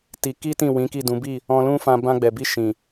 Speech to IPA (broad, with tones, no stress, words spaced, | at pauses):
ti˧ ki˦tĩ˦˨ wĩ˨˦ki˦˨dũ˨˦bi˦˨ | ɔ̃˧lũ˦fã˧ bã˧ɡ͡bɛ˨bi˧ ʃĩ˨